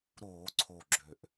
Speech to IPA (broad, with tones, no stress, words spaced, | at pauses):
ɾoː˧˩˧ǀʰo˨˩ ɡ͡ǁø˨˩ʔ